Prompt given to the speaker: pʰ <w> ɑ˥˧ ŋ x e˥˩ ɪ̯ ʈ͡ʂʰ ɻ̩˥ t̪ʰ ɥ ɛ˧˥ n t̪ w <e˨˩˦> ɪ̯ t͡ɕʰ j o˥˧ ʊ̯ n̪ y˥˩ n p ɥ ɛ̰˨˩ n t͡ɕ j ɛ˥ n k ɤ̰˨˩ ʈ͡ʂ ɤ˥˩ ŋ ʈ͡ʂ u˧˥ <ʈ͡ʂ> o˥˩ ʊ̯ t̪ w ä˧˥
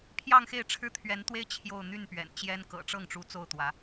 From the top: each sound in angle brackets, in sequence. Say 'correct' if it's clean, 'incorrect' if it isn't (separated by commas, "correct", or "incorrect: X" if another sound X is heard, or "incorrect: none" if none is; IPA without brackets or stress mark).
incorrect: j, incorrect: e˥, incorrect: t͡s